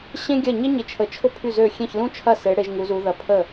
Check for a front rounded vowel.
present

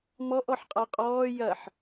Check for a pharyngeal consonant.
present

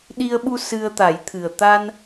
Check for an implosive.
present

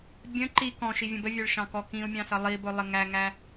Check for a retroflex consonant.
present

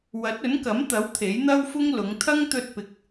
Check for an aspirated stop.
present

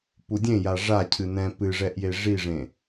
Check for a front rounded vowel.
absent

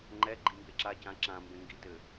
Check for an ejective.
absent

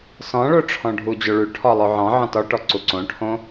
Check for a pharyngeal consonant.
present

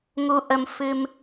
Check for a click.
absent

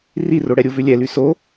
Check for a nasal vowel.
absent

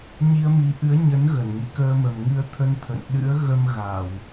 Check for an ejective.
absent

